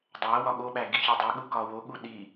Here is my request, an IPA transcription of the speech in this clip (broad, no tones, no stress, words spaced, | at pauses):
dˤæ wɒɠoɓæ ɡiçidˤeɠu kɒwoɠu ɗi